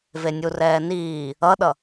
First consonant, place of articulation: labial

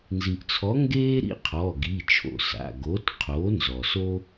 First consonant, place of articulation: alveolar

